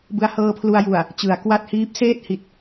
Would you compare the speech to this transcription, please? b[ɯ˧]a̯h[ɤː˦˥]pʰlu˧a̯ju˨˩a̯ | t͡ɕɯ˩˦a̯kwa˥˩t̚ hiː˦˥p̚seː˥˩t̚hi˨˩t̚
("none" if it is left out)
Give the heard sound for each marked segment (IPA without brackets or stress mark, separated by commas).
ɯ˧, ɤː˧